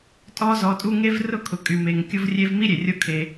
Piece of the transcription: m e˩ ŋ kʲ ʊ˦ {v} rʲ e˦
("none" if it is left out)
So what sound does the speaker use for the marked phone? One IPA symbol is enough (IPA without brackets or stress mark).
v